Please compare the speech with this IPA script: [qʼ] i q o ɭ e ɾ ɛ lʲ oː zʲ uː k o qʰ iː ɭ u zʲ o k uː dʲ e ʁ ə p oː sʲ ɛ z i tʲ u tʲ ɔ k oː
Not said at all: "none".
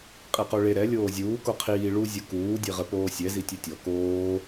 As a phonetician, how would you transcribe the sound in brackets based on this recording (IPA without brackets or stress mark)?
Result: qʼ